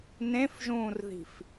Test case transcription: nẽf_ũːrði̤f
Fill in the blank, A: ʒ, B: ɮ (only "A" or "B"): A